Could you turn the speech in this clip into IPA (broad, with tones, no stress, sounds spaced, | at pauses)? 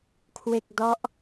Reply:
kʰ w e˥˩ k̚ d ɔ˦˥ ʔ